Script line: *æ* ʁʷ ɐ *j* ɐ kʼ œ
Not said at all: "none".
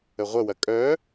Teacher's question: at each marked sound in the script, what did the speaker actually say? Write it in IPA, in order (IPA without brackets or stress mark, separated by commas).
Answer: ə, w